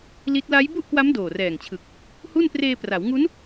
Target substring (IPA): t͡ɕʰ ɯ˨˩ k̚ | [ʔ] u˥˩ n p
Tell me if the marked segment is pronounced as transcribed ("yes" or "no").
no